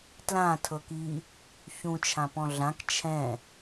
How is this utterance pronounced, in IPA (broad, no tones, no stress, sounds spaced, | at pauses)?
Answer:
t l ã tʰ ɤ k i | ç ũ t͡ʃʰ ã p ɔ̃ ɮ ã k t͡ʃʰ ɛ̃